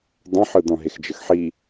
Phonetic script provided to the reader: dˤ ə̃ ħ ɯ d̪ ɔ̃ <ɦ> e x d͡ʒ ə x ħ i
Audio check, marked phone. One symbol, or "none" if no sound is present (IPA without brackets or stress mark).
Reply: ɦ